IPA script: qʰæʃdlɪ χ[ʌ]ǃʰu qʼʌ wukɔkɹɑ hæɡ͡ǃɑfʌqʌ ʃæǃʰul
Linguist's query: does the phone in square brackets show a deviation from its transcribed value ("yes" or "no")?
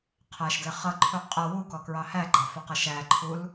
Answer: no